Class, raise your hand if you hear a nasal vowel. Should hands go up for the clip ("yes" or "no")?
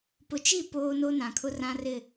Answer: yes